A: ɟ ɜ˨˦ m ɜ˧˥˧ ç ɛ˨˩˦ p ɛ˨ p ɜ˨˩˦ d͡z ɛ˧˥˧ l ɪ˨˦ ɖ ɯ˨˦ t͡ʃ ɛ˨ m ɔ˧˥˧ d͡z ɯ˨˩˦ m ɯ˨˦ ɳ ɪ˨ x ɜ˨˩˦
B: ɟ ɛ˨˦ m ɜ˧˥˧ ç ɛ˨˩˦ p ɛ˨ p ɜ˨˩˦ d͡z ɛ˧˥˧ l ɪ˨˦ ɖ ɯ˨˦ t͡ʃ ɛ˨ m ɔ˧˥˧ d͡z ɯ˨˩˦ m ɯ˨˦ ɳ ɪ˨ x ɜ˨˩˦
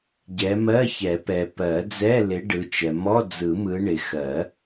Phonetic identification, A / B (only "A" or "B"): B